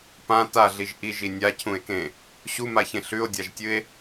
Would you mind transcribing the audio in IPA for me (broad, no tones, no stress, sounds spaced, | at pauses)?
p ã t a ɮ i ʒ ʔ i ʒ i nʲ a cʰ ũ e̯ k ẽ | ɕ u m a ç ẽ ɬ ʉ o̯ dʲ a ʒ tʲ ɨ e̯